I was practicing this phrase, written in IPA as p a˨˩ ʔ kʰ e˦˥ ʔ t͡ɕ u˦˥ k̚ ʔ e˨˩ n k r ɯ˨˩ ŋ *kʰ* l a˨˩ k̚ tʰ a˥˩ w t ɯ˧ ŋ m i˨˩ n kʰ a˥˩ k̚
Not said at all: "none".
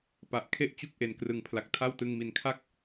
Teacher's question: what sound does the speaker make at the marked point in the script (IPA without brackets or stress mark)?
pʰ